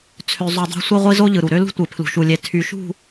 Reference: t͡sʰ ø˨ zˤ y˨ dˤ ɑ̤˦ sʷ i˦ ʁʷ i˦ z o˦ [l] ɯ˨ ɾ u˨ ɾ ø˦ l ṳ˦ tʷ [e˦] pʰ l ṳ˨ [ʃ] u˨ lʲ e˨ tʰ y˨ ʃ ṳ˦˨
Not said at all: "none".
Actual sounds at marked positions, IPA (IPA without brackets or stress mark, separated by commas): ʎ, e˨, ʃ